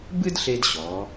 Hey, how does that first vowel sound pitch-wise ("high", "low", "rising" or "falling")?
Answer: high